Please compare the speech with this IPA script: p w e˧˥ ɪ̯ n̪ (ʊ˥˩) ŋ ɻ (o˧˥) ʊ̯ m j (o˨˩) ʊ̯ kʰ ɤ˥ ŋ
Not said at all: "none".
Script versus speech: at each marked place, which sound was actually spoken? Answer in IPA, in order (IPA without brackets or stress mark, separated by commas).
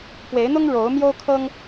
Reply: ʊ˥, o˧˥, o˥